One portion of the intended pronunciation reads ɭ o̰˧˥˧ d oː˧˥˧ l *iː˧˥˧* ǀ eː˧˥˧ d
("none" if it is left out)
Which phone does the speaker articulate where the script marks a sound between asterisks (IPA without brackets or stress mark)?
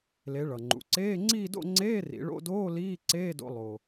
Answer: iː˧˥˧